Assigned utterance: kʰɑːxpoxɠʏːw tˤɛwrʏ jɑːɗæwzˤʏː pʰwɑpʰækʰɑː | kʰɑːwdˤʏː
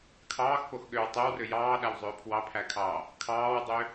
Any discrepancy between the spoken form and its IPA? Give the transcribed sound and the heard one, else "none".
none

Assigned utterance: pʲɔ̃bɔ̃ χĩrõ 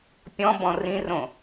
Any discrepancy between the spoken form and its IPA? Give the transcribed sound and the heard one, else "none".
χ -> r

